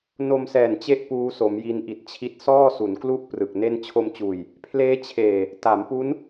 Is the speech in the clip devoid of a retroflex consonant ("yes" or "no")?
yes